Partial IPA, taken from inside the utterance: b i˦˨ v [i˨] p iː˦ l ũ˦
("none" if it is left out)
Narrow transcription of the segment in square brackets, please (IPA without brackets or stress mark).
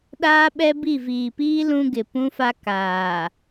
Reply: iː˨